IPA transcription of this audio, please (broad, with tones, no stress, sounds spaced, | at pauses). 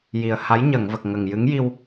j i˨˩ ə̯ h a˧˥ j ɲ ə˨˩˨ ŋ v ə˨˩ k̚ ŋ ə˨˩ ŋ j ɨ˧˥ ŋ j i˧ w